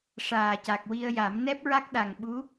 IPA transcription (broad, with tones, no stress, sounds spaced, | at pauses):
ʂ aː˨˩ c a˨˩ k̚ w i˧ ə̯ j a˨˩˦ m n ɛ˦˥ p̚ ɹ a˦˥ k̚ ɗ a˨˩ ŋ ɓ u˧˥